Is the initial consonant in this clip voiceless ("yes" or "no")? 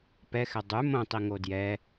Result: yes